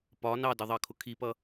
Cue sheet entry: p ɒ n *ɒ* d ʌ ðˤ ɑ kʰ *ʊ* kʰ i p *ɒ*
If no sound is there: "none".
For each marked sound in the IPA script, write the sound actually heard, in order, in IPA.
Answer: ɑ, ʊ, ʌ

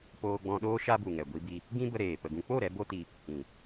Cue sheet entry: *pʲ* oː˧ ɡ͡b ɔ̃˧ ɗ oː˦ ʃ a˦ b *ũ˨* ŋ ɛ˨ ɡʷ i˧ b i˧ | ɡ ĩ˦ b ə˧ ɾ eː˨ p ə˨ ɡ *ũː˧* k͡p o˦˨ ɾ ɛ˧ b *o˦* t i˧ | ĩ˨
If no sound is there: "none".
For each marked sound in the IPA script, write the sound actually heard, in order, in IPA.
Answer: p, u˨, ũ˧, o˦

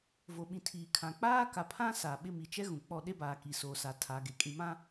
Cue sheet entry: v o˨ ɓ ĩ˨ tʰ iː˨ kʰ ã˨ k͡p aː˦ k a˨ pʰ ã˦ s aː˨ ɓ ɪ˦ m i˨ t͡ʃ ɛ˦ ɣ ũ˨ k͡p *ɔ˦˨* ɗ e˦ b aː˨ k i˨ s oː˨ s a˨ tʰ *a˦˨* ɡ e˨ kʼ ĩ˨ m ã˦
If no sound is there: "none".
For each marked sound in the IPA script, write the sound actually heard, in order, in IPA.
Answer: ɔ˦˨, a˨˦

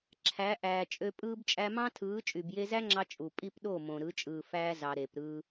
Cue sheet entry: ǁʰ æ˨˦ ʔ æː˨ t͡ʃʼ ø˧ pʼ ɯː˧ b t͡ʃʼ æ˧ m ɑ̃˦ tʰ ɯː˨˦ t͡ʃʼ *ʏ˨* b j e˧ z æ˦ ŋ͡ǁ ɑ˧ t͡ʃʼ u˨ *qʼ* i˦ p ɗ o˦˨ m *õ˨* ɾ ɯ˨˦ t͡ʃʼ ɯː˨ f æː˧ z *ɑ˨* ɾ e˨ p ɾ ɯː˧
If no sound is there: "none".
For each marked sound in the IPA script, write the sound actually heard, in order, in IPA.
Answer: y˨, pʼ, õ˨, ɑ˨

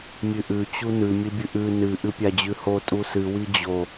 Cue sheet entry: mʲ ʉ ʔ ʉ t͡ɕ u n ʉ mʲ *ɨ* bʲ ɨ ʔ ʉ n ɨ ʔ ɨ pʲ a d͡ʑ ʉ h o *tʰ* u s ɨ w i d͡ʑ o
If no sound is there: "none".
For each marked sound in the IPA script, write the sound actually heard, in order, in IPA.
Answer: ɨ, tʼ

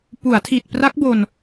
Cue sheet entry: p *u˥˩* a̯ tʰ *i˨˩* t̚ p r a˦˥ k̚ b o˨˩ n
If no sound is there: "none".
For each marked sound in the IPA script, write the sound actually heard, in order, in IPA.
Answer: u˩˦, i˨˩

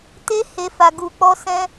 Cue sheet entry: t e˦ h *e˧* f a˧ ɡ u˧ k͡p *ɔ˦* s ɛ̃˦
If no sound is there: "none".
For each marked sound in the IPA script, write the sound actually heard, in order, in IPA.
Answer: e˧, ɔ˦

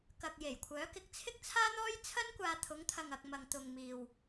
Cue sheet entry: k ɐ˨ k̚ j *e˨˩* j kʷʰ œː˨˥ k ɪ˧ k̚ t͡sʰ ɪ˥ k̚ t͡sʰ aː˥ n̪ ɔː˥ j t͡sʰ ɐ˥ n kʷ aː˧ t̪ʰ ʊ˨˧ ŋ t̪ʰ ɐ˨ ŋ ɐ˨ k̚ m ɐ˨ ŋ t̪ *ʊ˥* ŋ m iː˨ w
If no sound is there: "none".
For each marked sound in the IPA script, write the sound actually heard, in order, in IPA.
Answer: e˨˩, ʊ˨

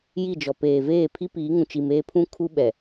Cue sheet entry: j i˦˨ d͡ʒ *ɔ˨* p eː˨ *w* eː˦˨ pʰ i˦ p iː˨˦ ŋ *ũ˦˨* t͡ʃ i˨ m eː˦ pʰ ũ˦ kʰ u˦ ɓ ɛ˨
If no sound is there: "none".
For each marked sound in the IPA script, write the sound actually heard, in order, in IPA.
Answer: ɔ˨, v, ũ˨

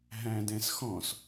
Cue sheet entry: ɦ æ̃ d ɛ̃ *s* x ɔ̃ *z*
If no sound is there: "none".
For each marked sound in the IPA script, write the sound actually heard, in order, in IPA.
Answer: s, s

